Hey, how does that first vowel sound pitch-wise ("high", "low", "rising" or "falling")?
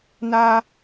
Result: high